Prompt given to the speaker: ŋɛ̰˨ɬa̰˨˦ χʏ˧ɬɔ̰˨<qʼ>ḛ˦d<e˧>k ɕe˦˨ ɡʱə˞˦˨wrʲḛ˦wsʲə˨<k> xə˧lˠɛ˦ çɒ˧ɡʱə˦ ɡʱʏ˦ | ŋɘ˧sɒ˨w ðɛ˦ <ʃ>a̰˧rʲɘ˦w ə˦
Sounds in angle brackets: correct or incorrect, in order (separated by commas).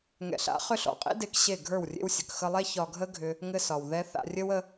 correct, correct, correct, incorrect